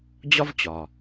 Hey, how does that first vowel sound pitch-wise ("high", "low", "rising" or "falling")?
high